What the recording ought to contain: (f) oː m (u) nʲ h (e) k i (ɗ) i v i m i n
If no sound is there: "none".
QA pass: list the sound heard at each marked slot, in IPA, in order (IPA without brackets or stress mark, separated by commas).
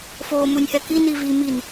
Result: f, u, ɛ, n